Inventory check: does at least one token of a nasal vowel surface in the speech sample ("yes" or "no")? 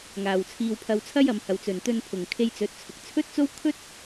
no